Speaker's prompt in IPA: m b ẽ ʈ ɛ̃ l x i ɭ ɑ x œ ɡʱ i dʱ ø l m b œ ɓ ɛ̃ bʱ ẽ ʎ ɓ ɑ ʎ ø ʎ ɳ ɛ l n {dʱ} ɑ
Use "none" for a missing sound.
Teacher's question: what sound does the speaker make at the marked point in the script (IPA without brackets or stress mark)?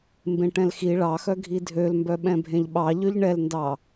d